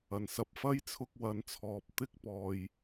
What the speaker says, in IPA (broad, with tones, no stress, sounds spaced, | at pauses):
ɐ˨ n s ɐ˧ p̚ f ɐ˥ j t͡sʰ ʊ˧ k̚ w ɐ˨˧ n t͡sʰ ɔː˨ p̚ t̪ ɪ˥ k̚ p ɔː˨ j